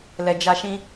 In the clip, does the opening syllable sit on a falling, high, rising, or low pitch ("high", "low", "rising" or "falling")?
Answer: low